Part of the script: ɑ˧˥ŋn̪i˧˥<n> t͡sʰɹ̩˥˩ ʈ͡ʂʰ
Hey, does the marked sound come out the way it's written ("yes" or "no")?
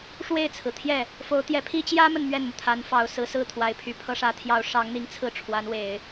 no